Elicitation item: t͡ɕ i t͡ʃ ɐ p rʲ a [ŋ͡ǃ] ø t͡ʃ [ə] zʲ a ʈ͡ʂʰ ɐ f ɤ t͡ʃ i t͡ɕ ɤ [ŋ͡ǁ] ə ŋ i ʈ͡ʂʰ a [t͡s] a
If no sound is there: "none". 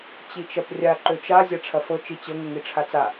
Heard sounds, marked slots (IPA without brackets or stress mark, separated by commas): ǃ, a, ŋ, t͡s